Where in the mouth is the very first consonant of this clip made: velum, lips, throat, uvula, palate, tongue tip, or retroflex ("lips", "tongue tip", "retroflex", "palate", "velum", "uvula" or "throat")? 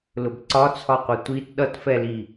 tongue tip